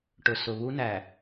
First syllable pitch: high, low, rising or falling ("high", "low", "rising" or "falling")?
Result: low